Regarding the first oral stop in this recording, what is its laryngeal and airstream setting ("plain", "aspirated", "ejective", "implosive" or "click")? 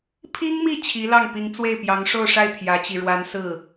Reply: aspirated